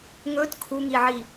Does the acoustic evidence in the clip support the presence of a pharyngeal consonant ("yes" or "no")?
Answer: yes